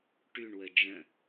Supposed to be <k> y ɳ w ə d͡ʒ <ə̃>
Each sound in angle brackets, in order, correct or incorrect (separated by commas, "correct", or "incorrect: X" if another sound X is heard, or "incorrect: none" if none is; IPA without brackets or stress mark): incorrect: ʈ, correct